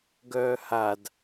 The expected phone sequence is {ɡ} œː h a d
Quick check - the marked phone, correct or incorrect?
correct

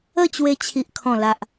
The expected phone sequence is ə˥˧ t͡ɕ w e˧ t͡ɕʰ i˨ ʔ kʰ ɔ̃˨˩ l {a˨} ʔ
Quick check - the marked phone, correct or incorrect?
correct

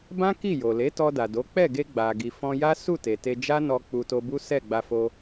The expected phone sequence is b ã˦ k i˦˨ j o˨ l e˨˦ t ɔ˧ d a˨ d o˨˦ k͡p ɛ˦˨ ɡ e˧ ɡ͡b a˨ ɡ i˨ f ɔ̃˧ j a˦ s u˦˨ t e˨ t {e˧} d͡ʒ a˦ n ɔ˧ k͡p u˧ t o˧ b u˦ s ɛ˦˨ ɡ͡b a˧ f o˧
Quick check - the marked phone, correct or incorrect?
correct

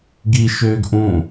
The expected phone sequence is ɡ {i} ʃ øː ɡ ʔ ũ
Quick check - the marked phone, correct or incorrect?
correct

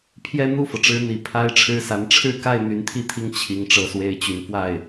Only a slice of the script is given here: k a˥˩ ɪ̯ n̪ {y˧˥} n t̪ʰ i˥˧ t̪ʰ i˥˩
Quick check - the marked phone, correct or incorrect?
correct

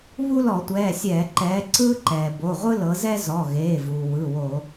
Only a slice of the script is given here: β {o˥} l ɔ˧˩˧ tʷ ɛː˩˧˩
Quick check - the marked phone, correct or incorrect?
incorrect: u˥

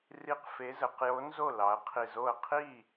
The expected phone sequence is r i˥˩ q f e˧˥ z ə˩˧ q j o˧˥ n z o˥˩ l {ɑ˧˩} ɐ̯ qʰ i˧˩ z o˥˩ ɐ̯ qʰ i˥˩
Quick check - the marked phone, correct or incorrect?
incorrect: ɑ˩˧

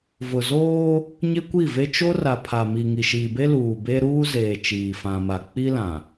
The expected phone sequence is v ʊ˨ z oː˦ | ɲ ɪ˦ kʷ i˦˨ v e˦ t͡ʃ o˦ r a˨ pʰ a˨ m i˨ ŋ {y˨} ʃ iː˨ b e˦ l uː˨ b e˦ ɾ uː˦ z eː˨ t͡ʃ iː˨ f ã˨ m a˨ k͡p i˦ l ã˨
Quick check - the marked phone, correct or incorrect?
incorrect: i˨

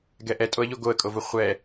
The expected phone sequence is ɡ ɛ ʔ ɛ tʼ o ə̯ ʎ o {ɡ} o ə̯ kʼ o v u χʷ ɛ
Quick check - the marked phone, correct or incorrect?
correct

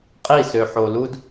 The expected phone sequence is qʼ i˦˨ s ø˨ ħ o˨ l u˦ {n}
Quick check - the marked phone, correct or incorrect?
incorrect: d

